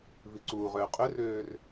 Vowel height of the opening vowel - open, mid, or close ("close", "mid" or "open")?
close